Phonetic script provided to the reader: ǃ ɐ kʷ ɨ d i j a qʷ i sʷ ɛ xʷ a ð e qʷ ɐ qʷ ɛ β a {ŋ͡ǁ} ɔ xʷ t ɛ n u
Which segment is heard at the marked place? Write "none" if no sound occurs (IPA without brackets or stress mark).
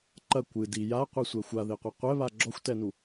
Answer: ɡ͡ǁ